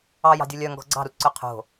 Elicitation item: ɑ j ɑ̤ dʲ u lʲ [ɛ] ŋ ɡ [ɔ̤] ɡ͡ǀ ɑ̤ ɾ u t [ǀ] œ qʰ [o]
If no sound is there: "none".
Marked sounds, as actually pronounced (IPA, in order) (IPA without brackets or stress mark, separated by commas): œ, ɔ̤, ǀ, o̤